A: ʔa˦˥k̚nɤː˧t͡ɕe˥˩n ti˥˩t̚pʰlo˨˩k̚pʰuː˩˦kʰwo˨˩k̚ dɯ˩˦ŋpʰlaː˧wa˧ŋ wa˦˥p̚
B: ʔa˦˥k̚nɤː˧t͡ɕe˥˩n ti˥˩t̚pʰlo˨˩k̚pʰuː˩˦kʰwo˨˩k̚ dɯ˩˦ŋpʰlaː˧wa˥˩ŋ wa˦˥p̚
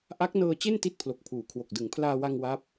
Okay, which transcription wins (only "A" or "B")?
A